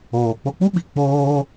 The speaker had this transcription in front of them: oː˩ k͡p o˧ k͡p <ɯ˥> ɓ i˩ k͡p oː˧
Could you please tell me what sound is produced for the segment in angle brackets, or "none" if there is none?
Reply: u˥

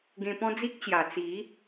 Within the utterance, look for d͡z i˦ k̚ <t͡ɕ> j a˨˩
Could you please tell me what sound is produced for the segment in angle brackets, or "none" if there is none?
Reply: t͡ɕ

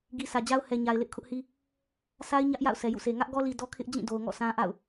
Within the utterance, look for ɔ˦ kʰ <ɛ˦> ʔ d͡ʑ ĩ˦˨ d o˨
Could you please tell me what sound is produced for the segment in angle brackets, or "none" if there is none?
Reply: ɪ˦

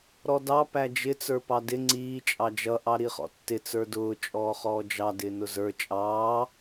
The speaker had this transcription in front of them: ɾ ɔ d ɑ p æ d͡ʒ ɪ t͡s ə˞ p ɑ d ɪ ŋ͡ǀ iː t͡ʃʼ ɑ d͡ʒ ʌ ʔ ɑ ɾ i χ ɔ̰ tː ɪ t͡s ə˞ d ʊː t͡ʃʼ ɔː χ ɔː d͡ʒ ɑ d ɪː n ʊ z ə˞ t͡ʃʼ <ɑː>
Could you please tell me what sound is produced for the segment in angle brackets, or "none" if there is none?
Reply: ɑː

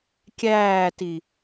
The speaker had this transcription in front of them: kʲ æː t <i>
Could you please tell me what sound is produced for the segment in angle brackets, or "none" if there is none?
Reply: i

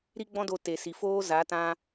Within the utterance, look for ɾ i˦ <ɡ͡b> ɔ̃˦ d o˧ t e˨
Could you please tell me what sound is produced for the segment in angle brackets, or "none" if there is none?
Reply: ɡ͡b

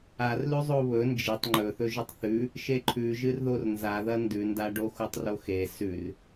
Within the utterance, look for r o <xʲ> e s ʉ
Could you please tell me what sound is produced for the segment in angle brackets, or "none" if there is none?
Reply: x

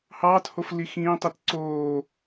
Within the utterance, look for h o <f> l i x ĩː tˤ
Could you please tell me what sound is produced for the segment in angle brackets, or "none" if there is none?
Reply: f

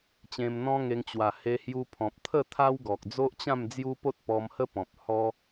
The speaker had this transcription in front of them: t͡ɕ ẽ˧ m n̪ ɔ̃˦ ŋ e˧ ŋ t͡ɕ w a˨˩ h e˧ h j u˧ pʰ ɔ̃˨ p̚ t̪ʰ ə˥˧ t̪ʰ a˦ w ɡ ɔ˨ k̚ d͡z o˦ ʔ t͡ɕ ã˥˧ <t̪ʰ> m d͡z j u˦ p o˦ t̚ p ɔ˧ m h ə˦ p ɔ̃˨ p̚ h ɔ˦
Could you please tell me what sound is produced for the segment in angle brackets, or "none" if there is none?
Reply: none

